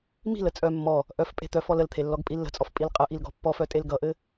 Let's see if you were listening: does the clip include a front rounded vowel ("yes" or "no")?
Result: yes